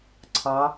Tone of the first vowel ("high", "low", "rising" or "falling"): rising